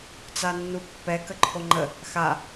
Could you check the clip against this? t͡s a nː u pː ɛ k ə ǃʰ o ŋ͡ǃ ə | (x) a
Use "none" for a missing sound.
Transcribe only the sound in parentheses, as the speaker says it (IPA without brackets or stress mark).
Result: x